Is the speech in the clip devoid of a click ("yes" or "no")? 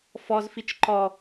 no